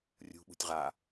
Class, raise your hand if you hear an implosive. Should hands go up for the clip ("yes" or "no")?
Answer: yes